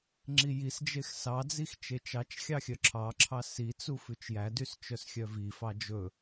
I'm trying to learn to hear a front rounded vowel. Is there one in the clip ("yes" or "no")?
yes